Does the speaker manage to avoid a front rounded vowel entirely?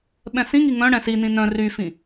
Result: no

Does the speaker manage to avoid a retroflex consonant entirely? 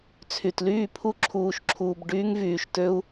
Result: no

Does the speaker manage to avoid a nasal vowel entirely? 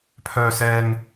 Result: yes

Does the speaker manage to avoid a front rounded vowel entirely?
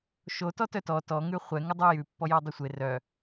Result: no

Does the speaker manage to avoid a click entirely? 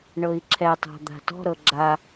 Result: no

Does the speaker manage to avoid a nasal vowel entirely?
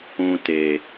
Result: no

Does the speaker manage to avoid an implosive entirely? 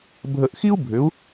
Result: yes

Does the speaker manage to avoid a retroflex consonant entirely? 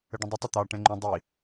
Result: no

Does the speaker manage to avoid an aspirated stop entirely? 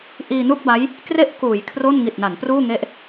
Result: no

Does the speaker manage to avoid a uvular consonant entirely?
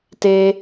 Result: yes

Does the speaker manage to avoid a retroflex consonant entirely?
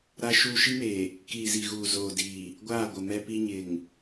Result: yes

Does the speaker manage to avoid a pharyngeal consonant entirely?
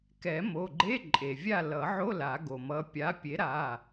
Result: no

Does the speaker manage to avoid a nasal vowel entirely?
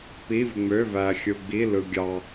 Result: yes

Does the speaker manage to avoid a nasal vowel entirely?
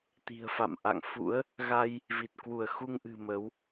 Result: yes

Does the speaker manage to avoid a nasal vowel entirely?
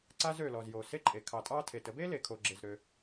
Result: yes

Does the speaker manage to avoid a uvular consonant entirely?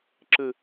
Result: yes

